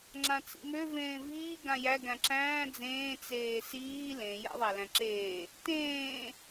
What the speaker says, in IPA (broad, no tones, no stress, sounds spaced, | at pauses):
ŋ͡ǁ ã t͡s ḭ m ø v ẽː v iː ɡ ã j æ ɡ æ̃ ǁ æ̃ː d͡z ẽː t͡s eː s iː l ẽ j a̰ ðˤ æ l æ̃ ǁ eː | t ẽː